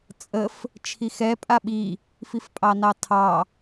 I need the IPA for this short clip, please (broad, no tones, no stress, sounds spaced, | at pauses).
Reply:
t͡sʼ ə f | t͡ʃʰ i x ɛ pʼ a ɓ i | f i f pʼ ɑ n ɑ tʰ ɑ